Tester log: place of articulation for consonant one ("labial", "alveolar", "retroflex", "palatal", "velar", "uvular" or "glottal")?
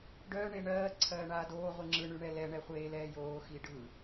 retroflex